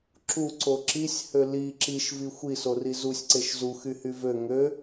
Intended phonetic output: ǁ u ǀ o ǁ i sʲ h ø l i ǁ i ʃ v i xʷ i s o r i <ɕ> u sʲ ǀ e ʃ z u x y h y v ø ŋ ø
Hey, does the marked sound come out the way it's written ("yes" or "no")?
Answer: no